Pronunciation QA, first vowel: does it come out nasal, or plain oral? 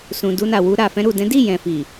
nasal